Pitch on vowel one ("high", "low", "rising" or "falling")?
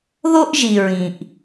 high